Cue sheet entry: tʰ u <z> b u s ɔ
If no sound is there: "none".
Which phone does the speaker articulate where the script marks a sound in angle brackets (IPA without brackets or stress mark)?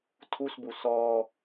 s